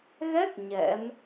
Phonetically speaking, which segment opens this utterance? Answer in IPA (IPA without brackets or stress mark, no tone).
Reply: ɣ